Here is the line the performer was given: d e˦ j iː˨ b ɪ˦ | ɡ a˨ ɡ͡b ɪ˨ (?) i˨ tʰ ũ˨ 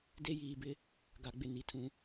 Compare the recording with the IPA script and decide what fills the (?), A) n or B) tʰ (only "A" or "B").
A